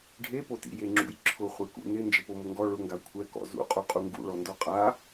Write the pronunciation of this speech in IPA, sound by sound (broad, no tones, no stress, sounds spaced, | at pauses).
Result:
ɖʱ e p o t ḭ j e ŋ͡ǁ ṵ j ǁʰ ʊ χʷ e k ṵ n ɪ n d͡ʒ ɪ p o m ʊ ŋ ɡ ɔ ɭ ʊ ŋ ɡ a kʷʰ ɛ k ɔ̰ z ṵ qʼ u qʼ u ŋ ɡ ṵ ɭ ɔ n d ɔ qʼ a